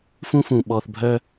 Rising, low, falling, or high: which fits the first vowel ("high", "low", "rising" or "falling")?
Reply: high